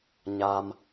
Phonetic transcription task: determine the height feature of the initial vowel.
low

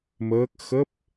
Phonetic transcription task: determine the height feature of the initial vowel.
mid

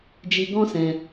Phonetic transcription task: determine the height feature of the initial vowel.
high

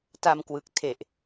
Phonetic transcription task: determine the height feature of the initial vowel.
low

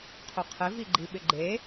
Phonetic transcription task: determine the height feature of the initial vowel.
high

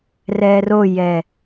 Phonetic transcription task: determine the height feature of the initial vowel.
mid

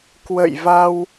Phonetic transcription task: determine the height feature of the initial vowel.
mid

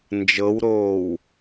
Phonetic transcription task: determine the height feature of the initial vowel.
mid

